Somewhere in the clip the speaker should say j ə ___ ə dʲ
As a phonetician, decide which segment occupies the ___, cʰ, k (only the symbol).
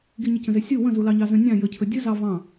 cʰ